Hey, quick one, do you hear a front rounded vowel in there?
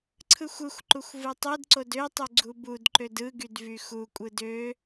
yes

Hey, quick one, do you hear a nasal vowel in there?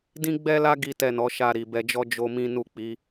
yes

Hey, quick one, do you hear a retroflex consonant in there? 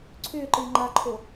no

